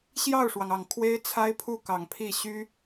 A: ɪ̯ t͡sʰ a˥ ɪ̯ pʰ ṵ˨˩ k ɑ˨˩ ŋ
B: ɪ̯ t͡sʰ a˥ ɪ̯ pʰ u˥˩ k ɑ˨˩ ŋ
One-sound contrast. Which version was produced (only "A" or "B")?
B